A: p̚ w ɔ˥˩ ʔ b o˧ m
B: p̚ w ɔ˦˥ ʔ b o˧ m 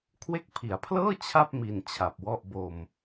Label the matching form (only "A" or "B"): A